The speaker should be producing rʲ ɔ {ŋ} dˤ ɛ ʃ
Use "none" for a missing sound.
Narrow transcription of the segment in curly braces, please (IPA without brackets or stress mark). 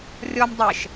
m